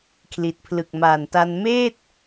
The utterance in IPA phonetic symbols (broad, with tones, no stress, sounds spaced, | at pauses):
kʰ l i˨˩ t̚ pʰ l ɯ˨˩ k̚ m aː˨˩ n t a˧ n m eː˥˩ t̚